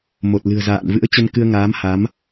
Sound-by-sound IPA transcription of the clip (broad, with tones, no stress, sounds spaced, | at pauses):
m o˨˩ t̚ l ɨ̤˨˩ ə̯ z a̰ː˧˨ n v ɨ̰˧˥ ə̯ t͡ɕ ə˧ n k ɨ˧ ə̯ ŋ aː˨˦ m h a˨˦ m